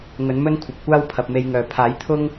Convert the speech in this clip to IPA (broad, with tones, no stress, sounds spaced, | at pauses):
ŋ ɵ˨˥ n m ɵ˥ n kʷʰ ɐ˨ p̚ kʷ aː˥ w pʰ ɐ˨ p̚ m e˧ j ŋ œː˨ pʰ aː˨˥ j t̪ʰ ʊ˥ ŋ